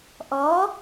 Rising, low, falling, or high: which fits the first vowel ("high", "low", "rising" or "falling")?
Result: rising